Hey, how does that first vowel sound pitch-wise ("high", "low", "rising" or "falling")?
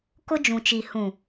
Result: high